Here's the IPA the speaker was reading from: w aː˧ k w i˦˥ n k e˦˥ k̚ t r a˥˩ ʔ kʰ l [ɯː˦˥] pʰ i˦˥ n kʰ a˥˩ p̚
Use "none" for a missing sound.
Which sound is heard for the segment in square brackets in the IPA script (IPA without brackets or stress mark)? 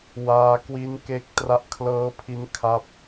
ɤː˦˥